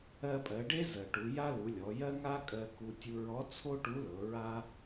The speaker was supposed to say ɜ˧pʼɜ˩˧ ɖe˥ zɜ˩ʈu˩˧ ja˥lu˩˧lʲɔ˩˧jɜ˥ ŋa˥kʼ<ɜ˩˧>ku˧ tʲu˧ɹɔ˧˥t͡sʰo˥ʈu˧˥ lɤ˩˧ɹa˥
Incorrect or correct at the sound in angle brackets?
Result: incorrect: ɜ˧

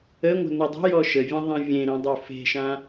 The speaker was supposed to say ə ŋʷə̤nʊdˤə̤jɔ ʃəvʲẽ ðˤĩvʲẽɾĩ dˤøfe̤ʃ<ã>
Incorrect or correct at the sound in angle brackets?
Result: correct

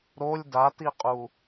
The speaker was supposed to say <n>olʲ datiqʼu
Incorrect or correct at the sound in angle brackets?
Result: incorrect: ɾ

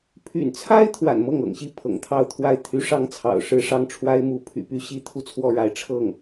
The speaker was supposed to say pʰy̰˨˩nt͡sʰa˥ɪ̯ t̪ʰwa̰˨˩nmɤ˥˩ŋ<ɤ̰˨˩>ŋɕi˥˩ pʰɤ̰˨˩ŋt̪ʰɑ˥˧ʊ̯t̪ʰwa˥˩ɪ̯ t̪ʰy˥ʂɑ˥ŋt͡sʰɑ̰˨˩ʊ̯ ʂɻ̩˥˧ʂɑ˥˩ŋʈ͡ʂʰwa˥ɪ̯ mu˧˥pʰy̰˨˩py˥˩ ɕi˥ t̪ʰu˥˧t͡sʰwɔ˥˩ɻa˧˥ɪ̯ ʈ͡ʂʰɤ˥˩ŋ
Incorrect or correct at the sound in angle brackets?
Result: correct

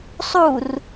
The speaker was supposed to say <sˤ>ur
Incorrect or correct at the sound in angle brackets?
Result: correct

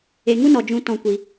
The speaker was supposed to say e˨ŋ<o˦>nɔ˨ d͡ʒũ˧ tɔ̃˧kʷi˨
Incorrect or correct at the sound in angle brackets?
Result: incorrect: u˦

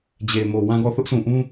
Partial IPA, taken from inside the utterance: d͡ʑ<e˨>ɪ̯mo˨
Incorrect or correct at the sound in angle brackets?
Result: correct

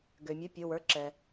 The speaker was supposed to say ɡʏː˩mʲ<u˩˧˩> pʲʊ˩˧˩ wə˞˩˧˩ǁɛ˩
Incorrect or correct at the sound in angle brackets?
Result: correct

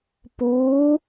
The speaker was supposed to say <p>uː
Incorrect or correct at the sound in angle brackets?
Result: correct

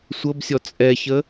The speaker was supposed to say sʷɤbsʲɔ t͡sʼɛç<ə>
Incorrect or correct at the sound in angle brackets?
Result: correct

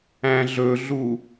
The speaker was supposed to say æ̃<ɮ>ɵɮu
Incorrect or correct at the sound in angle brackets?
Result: correct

